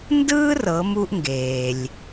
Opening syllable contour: high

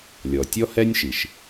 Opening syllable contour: low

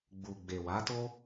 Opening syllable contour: low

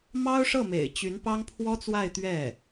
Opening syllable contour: high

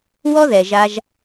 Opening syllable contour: high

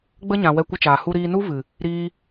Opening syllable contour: high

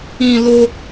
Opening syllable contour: high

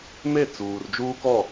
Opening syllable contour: falling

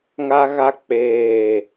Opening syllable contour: high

